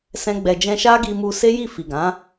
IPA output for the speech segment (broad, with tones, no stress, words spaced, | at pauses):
sɛ̃˦ɡ͡bɛ˧d͡ʒɛ̃˦ ʃa˦ɡi˧mu˧ se˦ji˦˨ fi˨ɡã˨˦